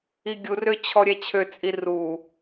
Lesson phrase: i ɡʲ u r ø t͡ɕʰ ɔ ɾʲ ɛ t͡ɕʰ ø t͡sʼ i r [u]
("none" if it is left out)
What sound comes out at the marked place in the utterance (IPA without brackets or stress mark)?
u